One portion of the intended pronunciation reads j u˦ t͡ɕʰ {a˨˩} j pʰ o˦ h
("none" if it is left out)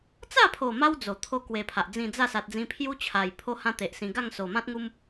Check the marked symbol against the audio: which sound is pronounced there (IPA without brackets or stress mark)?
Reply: a˨˩